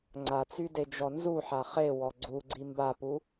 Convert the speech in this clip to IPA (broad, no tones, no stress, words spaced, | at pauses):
ŋ͡ǀat͡syded͡ʒɔ nzuħa χewɔ ɡ͡ǀuɡ͡ǀi mbapu